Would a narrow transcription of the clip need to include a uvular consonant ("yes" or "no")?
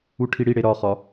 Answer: yes